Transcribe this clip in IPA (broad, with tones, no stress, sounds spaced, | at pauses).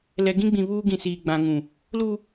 l ɛ˨ ɡ ĩ˦ ɡ͡b ĩ˨ β uː˦ ɡ ĩ˨ s iː˨ ɡ͡b ã˨ ŋ ũ˨ | l u˦